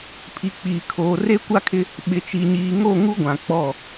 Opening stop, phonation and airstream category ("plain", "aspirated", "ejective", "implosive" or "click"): aspirated